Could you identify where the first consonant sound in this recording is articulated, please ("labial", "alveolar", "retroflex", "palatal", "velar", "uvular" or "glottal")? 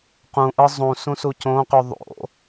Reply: uvular